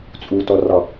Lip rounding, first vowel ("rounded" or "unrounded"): rounded